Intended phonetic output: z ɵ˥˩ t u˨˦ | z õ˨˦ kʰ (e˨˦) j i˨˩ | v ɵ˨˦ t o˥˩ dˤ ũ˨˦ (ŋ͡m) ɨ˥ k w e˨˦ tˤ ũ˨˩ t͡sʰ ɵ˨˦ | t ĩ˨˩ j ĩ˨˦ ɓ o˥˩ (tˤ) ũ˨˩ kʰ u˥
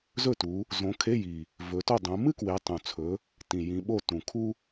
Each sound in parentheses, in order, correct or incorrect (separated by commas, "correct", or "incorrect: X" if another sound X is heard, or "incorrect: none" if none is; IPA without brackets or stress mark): incorrect: e˧˥˧, incorrect: m, incorrect: t